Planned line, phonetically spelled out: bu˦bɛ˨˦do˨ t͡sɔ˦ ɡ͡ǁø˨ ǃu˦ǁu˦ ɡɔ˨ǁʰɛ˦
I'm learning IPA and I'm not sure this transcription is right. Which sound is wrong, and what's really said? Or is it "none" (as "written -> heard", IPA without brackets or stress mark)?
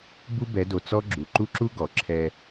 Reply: ø˨ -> u˨